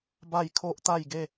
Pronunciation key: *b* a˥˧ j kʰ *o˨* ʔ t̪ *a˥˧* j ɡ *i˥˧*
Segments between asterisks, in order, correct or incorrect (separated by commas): correct, incorrect, correct, incorrect